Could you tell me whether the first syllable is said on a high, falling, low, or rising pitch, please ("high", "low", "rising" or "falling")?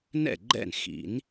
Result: falling